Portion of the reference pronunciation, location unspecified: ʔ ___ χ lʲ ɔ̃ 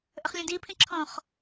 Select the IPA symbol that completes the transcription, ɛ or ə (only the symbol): ə